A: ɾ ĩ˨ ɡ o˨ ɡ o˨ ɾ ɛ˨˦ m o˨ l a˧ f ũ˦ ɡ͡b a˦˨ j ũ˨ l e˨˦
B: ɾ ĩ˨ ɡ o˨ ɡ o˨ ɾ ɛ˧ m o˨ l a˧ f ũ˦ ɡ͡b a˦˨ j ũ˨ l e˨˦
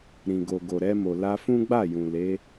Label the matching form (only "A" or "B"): B